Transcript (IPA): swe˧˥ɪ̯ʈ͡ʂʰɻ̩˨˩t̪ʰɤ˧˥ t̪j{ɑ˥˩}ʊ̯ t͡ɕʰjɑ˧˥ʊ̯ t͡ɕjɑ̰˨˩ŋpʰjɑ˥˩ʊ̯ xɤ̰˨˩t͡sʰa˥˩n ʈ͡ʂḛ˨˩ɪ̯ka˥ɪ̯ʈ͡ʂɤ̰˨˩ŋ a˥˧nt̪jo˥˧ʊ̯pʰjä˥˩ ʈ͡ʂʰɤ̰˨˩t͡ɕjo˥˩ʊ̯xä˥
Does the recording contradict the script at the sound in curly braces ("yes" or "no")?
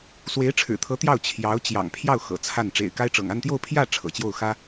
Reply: no